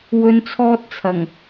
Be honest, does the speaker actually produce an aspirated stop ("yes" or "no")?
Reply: yes